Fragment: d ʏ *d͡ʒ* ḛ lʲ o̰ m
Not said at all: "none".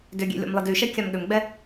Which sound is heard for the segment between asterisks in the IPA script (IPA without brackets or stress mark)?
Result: ɡʲ